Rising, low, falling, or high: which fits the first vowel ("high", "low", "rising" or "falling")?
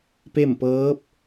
falling